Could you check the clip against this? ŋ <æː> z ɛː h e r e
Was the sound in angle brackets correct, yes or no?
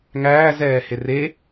yes